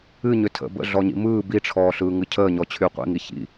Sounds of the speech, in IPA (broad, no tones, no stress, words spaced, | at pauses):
ɨ ɲʏtʰə̰ bə̰ɮɔɲḭ mɯː biʈ͡ʂʰɔː ɬɯːŋɨcʰəːɲɔ t͡ɕʰyqʷḭŋi çḭ